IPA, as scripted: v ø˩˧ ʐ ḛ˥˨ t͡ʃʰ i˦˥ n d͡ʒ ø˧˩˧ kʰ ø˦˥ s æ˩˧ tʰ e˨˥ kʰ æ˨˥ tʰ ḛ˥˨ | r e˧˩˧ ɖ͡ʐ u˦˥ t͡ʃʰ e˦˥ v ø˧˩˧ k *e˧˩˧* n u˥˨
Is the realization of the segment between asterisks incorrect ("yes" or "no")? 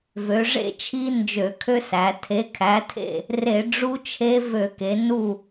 yes